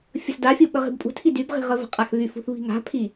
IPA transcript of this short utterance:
fʲəsdafʲu ɓəʁi̤bpʼṳtʰi dybʁi̤ʁə və̤qʼaxβyf ṳθβi̤ŋa̤pʰi

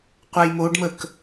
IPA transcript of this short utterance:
qʷajmoɖmək

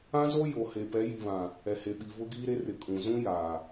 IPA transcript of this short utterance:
ã˦zo˦ jo˨he˨ pɛ˨˦ji˨ βã˨ | ɛ˨he˨ɓi˨ vʊ˦ɡiː˦ɾe˦ rɪ˨ kʼũ˨ zũ˦ jaː˨

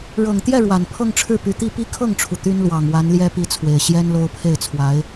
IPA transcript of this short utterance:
ɻɤ˨˩ŋt̪jɛ˥˩ ɻwa˨˩n pʰɤ˥˧ŋʈ͡ʂʰɻ̩˥˩py˧˥t̪i˥˧ pi˥˧kʰɤ˥˩ŋʈ͡ʂʰu˩ t̪y˥nlwɑ˨˩ŋwa˧˥nljɛ˥ pi˥t͡sʰwe˨˩ɪ̯ ɕjɛ˥n lo˥ʊ̯pʰe˥˩ɪ̯t͡sʰwa˧˥ɪ̯

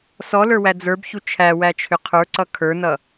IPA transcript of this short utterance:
sɔlə˞wæ d͡zə˞bçu t͡ʃʰæwæt͡ʃʰʏ qʰə˞ǀʌ kʰə˞nʌ

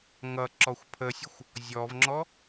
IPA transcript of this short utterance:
ŋʌ ǁɔxʷpʰəsʲəxʷ | zʲɔvŋ͡ǁɔ

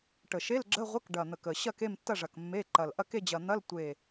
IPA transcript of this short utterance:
ʈə˨˩ʃe˧˥˧lɡ͡ǁə˧˥˧ʁʷə˧˥˧k ɖɐ˨˩n̪ə˨˩kə˨˩ ɕɐ˦˨ke˦˨mtːɐ˦˨ʐɐ˨˩k mːe˧˥˧ ǃɐ˨˩l ʔɐ˦˨ke˦˨d͡ʑɐ˨˩n̪ɐ˧˥˧l tʷe˦˨

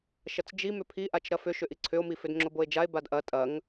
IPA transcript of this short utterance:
ʃɐt͡sd͡ʒi mʏpʰiʔat͡ʃ ɾɐfʏ ʃʏʔiǀʰʏo̯mi fʏdŋ͡ǁoboe̯d͡ʒae̯ badʔɐ tʼɐŋ

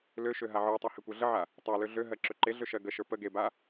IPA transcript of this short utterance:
løʃø ɦaʕə˞tˤa hekʷə˞ɮəʕa | tˤa løɮøɦɜ ǁøǃeɮø ʃɜɡəʃə˞ pə ɡeba

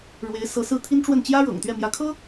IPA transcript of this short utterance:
ɻwe˧˥ɪ̯sɤ˧˥sɹ̩˥˩ t̪ʰi˥nʈ͡ʂwə˥˩n t͡ɕjä˥ɻɤ̰˨˩ŋt̪ɥɛ˥˩ mjä˧˥kʰɤ˥

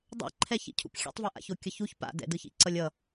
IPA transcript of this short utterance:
dˤɛ̰ǃʰɛçḭcʰṵp xʲɛ̰tˤve ʔa̰çokʲʌçuç pa̰dɛ̰dɯçḭ ǀʌlʲʌ

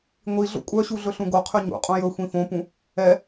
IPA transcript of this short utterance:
ŋʷiɮo̰ kʷʼœɕu ɮɵɬũɡoqʰy ɲṵqʼũ jɵ xʷĩfõpũ | ɛ

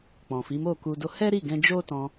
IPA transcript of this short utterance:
k͡pɔ̃˨fi˨˦mo˦˨ku˧ do˧ hɛ˦ɾi˦˨ ɡɛ̃˧d͡ʒo˦tɔ̃˧

